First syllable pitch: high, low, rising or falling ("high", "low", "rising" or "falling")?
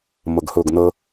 low